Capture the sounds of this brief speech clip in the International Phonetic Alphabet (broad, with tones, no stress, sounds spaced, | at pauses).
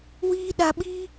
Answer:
w iː˦ ɗ a˧ ɓ iː˦